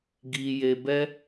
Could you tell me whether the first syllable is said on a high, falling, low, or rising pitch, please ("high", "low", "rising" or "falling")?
low